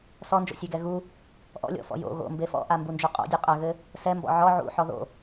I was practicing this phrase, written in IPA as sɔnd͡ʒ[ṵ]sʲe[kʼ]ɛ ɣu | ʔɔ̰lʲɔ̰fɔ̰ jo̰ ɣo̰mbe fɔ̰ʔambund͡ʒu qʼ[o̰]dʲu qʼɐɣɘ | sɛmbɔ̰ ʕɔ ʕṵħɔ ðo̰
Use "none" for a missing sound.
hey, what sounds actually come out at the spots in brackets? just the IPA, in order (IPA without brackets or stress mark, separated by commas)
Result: o̰, ɡ, ɔ̰